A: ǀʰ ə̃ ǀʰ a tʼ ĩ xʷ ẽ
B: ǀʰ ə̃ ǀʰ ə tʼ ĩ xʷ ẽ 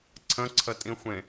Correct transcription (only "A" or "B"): B